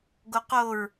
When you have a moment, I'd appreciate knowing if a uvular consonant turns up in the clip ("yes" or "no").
yes